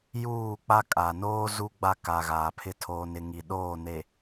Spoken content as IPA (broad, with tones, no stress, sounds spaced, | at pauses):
j uː˦˨ k͡p a˦ kʼ a˨ n oː˦ z u˦ ɡ͡b a˦ k a˨ ɣ aː˨ pʰ ɪ˦ tʰ oː˨ n ɪ˨ ŋ i˨ ɗ oː˦˨ n e˨